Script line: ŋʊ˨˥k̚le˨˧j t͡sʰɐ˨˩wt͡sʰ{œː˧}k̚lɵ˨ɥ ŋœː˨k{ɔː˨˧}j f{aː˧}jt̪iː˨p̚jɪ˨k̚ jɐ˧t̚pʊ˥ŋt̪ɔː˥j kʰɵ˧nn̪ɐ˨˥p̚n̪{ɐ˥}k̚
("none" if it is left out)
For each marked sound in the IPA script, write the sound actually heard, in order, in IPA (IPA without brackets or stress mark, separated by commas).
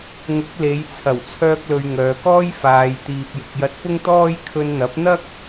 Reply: œː˧, ɔː˥, aː˨, ɐ˥